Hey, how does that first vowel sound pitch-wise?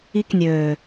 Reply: high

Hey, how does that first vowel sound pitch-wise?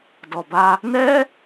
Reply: low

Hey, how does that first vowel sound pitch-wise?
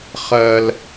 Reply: high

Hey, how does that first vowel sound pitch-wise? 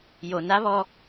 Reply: low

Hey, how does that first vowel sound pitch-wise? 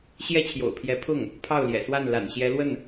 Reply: high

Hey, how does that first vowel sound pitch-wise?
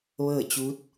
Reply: falling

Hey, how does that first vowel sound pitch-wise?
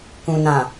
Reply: low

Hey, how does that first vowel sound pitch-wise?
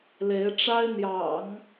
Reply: rising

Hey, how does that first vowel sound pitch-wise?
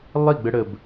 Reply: falling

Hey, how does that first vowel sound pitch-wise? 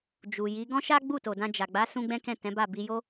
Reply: low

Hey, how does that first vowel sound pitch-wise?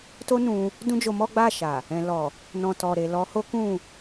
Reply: high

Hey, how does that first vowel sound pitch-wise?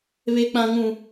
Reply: high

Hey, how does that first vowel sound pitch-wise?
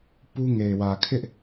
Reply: high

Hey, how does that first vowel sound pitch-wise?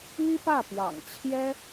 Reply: high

